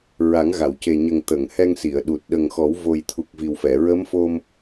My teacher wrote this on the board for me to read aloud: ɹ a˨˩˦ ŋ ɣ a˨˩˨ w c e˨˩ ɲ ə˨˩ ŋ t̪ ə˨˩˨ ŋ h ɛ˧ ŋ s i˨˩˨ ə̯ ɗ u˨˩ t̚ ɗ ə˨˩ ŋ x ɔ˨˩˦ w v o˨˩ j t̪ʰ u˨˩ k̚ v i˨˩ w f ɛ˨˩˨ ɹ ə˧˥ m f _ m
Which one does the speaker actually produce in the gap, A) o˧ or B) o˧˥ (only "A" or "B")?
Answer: A